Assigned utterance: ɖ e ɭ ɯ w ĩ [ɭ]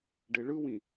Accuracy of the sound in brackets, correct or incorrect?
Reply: incorrect